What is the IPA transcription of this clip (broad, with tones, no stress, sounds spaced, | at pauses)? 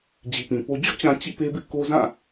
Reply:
d͡ʑ i˨ p ĩ˨ p o˦ d͡ʑ ɔ̰˦˨ t͡ɕ ã˨ t͡ɕ ḭ˦˨ p e˦ b ɪ˦ ʔ k o˦ z ã˦˨